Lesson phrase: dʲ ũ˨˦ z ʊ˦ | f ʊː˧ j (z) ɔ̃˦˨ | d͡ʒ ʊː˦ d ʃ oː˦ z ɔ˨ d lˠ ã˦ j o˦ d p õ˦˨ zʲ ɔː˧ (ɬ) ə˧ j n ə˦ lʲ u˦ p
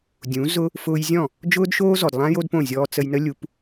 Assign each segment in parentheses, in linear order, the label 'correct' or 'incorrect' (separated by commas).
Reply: incorrect, incorrect